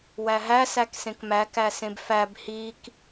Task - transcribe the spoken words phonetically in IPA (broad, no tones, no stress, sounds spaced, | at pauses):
w æ ɦ æ s æ k s ẽ k m æ k æ s ẽ b f æ b h i k